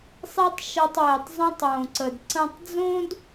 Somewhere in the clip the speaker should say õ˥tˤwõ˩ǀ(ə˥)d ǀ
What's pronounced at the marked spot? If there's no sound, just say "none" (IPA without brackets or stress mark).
ə˩